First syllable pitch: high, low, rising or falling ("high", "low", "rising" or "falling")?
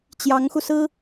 rising